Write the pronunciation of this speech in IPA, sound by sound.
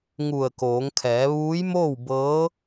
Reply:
ŋu˧˩ə̯koː˩˧ŋ kʰɛː˩˧ʋuː˧˥jmoː˥˨w bɤː˧˥

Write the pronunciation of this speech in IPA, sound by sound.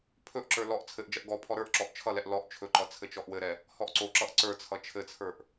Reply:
pʰɵʔǁə˞ lɔʔ t͡sʰɘʔd͡ʒʌʔ ɡɔ pʰɔɾə˞ʔǁɔʔ t͡ʃʰʌlɛʔ lɔʔ t͡ʃʰɵǃʌ t͡sʰɘt͡ʃɔʔwɘɾɛ | hɔʔǀoǁʌʔ ǀə˞t͡sʰʌ t͡ʃʰɘt͡sʰə˞ʔ

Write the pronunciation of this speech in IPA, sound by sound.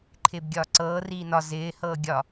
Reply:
ǃʰɪːbɡʲɒːǀɤː riːnɒ zɪː hɤːɡʲɒ

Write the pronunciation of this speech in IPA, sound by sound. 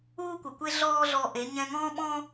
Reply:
uː˦kʷɪ˨kʷe˦ ɮɔː˦ɮɔ˧ʔe˨˦ ɲɛ̃˧ŋɔ̃ː˦ɓɔ̃˦

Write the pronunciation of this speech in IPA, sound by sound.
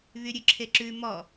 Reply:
βyɾʲʉǁʰeǁʉ mɔ

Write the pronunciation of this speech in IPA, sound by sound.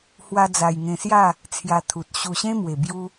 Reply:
hwa˦d͡za˧j ŋẽ˧sja˥˧ | t͡sʰja˧ t̪ʰu˨t̚ ɕu˨˩ ɕẽ˦mwe˨˩bju˧

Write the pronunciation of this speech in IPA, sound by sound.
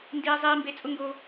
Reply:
ndiː˦zˤiː˦mbe˦ t͡sʼʊ˦ŋɡo˦

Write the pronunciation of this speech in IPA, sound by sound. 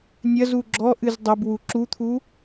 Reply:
nʲɐzu ɡ͡ǁɔʔɨz dˤɐb wuǁut̪ʰu

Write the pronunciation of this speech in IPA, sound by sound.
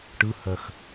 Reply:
ʈɯhɜx

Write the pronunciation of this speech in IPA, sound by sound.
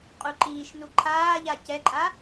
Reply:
qʼuǃiːʃnu ǃʰaːʎa cɛǃʼa

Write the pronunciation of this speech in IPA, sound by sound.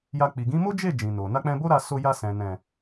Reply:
ja˧ k͡pi˨ɡĩ˨˦mo˦d͡ʒe˦˨ d͡ʒĩ˨no˨ na˧k͡pɛ̃˧bo˦ɾa˧ so˧ja˧sɛ̃˨ nɛ̃˨

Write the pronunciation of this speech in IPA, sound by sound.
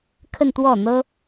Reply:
kʰə˥˧nt̪wɔ˥˩n̪ɤ˥

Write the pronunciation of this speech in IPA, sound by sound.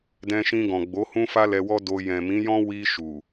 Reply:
dɛ̃˧ʃĩ˧ɡɔ̃˨ ɡ͡bo˨˦ hũ˦fa˦lɛ˧wɔ˦ do˧ jɛ̃˨mĩ˨˦jɔ̃˦ wi˧ ʃu˨

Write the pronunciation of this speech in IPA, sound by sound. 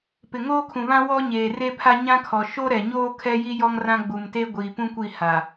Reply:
pɪ˨ ŋoː˦kʰũ˨βã˦ wɔ˦ɲeː˨re˦pʰa˦ ɲã˦kʰɔ˨ ʃo˦ɾɛ˨ɲoː˦ kʰɛ˦ji˦ jɔ˦ŋrã˦ɡ͡bu˨mte˦ ɡʷiː˨pũ˦kʷi˦˨ ha˨

